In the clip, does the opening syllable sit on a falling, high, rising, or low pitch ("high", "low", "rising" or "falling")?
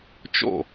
falling